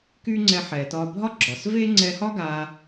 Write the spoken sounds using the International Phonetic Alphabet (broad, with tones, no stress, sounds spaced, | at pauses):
k y˥ ŋ͡ǀ ɛ˧ ħ ɛ˩ t ɒ˧ bʱ ɒ˥ ɡ͡ǁ ɒ˩ s v e˥ ŋ͡ǀ ɛ˧ h ɒ˥ ɡ a˧